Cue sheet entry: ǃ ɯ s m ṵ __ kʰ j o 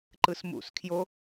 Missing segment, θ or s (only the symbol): s